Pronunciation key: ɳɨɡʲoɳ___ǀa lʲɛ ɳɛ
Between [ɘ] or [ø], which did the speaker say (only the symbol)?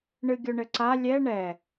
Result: ɘ